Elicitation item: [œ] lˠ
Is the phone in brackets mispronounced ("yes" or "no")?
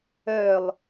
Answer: no